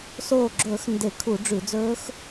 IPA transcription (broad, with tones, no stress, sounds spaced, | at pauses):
s oː˧˩ ɡ͡ǁ ɵː˧˩˧ x n d e˧˩˧ kʰ u˧˩˧ ɖ͡ʐ ʉ˧˩˧ d͡z ɵː˦˥ x